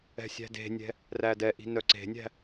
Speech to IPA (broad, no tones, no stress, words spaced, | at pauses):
ɛ̤sʲæ̤de̤nʲɛ̤ | rædɛʔi̤ nœǀe̤nʲæ̤